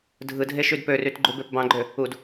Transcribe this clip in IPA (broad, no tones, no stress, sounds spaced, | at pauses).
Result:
dʱ ɯ dʱ e ʃ y d p ø r y t ɡ͡ǃ u b e p b ɑ̃ ɡ͡ǃ ø | u d